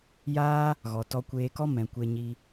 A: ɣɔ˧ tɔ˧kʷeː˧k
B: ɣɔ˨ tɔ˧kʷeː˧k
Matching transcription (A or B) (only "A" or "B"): B